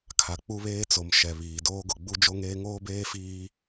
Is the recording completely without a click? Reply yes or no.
yes